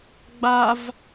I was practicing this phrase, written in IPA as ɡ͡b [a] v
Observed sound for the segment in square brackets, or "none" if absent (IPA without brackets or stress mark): a